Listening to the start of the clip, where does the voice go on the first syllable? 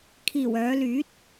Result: low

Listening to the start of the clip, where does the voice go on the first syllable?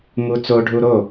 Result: high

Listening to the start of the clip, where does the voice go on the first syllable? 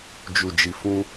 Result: low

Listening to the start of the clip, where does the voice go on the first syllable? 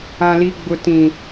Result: high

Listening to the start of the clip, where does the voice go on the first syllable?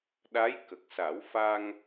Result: rising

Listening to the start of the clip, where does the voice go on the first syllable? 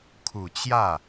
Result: low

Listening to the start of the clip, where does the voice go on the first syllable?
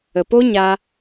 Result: low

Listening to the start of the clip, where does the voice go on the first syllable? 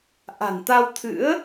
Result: low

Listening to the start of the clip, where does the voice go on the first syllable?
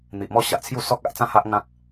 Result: low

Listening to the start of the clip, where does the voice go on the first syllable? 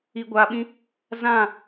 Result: low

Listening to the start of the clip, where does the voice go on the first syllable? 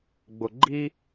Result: low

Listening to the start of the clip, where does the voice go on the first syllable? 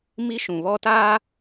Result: high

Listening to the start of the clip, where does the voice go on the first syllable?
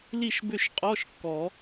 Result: falling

